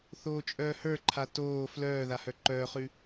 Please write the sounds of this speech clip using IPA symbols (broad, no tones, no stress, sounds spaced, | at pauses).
θ oː t͡ʃʼ œː h ə˞ ǃʰ a t oː f l œː ð a h œ ǃ œː χ ʉ